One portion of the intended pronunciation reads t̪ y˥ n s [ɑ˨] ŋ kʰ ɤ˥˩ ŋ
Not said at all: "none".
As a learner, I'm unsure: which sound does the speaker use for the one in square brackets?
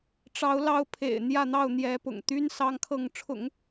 ɑ˥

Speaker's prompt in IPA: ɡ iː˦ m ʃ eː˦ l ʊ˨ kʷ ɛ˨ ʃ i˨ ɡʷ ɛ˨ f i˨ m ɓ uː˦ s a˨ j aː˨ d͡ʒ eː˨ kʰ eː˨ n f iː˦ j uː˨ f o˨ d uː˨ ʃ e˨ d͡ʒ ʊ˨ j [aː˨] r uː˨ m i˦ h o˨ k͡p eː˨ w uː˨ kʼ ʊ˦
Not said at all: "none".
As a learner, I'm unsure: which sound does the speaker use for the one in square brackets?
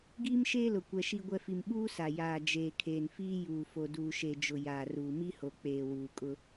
aː˨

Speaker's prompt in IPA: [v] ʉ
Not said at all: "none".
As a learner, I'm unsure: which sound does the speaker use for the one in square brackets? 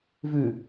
v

